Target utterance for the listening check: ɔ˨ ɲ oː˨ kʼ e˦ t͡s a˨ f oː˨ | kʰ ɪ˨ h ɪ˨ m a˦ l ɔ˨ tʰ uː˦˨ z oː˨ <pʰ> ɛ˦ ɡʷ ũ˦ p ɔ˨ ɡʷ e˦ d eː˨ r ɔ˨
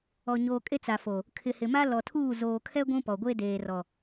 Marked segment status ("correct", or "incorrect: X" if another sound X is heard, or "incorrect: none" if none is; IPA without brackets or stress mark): incorrect: kʰ